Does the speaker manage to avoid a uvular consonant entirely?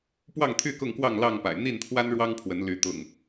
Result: yes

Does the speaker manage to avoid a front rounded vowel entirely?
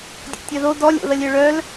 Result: no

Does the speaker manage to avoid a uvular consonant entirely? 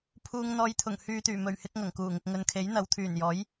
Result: yes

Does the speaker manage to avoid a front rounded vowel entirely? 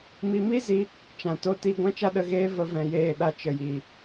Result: yes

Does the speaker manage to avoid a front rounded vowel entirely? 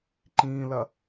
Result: yes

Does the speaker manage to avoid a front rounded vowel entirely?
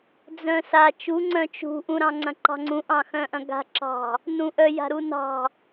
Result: no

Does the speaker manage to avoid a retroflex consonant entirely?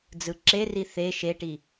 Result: no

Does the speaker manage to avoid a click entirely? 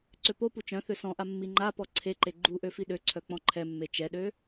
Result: no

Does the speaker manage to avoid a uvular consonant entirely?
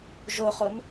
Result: no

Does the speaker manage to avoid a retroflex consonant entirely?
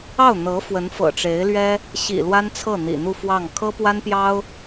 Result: no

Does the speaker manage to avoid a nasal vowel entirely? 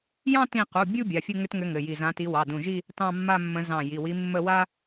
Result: no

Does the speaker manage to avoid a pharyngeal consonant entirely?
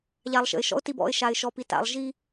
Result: yes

